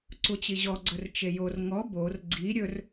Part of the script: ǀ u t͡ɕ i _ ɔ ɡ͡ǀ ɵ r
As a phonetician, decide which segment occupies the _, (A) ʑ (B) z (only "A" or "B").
A